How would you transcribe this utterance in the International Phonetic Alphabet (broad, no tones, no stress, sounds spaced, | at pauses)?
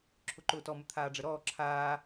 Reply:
ǁʰ ʊ ǃ ʊː t ɔ m ə t̪ʰ aː ɖ͡ʐ ə ɾ ɔː ǁʰ aː